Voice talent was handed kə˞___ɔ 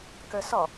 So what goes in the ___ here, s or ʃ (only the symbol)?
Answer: s